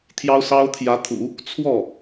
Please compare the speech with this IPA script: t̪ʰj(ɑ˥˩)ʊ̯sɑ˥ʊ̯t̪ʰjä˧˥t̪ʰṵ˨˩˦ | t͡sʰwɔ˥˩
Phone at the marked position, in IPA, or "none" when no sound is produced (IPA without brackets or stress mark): ɑ˥